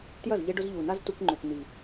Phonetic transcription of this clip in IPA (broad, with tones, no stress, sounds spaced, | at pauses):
t j ɐ˦˨ z ʎ e˧ ɖ ʊ˧ z ʎ u˨ n a˦ z t u˧ k ŋ͡ǃ ø˨ k n̪ i˨